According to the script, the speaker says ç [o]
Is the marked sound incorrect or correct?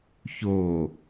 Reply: correct